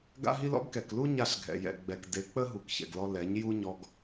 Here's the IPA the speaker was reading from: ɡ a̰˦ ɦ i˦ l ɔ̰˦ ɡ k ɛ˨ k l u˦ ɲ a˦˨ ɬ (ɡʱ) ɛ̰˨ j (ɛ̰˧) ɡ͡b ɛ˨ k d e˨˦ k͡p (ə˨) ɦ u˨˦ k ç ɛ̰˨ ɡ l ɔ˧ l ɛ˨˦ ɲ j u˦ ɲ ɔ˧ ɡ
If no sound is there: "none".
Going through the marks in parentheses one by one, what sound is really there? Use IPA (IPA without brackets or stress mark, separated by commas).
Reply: ɡʱ, ɛ̰˨, ə˦